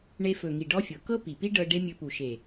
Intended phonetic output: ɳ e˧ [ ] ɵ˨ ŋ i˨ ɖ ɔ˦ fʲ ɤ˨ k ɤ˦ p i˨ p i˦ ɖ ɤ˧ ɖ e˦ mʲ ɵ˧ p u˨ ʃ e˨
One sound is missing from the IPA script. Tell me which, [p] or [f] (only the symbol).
f